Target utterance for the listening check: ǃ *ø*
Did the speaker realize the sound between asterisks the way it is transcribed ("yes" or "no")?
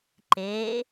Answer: no